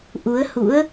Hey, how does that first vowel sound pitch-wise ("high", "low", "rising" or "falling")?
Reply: rising